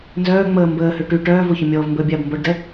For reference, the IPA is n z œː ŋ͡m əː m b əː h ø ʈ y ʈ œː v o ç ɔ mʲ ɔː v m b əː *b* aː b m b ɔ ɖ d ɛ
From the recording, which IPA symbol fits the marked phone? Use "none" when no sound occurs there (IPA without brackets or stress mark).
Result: bʲ